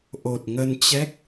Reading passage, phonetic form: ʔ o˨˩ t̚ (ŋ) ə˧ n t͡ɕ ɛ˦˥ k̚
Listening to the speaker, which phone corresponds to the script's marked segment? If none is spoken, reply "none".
ŋ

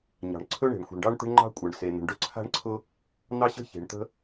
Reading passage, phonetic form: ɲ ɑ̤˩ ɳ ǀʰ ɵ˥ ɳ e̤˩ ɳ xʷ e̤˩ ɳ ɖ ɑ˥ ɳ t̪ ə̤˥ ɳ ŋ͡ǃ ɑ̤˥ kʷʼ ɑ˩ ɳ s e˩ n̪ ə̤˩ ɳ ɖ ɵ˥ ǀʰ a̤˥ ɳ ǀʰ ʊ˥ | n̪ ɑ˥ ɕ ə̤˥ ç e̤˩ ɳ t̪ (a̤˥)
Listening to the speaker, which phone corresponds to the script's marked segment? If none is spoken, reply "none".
ə̤˥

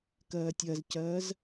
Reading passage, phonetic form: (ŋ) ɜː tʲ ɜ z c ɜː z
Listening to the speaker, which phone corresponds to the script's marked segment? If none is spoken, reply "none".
k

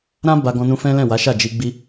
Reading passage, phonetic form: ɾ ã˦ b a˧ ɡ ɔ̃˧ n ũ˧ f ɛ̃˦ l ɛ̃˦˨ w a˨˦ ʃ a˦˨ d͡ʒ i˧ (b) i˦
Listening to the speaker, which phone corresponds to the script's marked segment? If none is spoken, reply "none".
ɡ͡b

